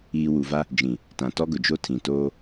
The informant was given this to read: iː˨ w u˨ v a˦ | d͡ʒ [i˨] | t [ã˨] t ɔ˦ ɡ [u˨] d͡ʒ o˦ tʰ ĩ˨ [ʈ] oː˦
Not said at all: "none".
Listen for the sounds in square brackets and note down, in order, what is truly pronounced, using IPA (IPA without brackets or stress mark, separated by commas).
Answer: ĩ˨, ã˨, ʊ˨, t